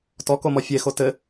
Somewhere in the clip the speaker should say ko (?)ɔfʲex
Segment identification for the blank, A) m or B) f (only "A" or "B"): A